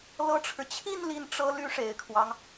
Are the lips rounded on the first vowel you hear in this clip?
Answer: no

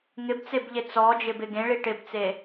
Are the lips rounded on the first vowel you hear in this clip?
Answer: no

